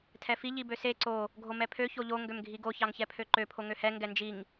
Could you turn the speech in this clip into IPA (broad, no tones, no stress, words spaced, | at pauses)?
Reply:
tʰɛfi ʎibøse ǀo | ɡʱomɛpʰø çoʎo ŋɡømɡʱiɡo çɑŋçɛpʰøǃø pʰoŋøhɛ ŋɡɛnd͡ʒiŋ